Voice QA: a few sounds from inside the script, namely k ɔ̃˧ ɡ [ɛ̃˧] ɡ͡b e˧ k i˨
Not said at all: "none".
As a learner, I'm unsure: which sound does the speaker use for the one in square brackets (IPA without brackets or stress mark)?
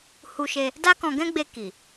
ɛ̃˦